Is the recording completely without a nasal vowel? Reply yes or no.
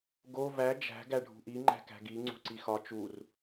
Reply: yes